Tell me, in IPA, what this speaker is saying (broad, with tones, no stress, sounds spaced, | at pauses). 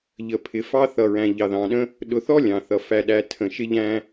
ʎ ə˨ pʰ ɪ˨ f ɑ˦ θ ʌ˨ ɹ æ̃˨ ʎ ɑ˨ ð ɑ̃˨ ɗ ə̃˦ | ɗ ʊ˨ θ ɔ˦ lʲ ɑ̃˨ θ ʌ˨ f æ˦ ɗ æ˦ tʰ ə̃˦˨ ʃ ɪ˦ ʎ æ̃˦